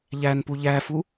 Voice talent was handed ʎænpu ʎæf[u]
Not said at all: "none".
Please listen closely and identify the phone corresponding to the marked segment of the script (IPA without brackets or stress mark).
u